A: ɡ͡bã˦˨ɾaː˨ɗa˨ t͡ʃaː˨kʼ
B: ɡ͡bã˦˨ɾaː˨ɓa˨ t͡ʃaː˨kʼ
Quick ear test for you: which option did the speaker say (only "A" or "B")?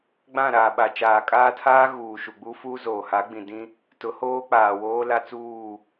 B